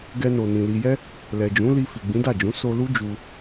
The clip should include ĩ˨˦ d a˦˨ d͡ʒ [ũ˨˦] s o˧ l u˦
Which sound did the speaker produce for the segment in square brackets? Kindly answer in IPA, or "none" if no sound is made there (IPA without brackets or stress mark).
ũ˨˦